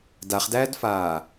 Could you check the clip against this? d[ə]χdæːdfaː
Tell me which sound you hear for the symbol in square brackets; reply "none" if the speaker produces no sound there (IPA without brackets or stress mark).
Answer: a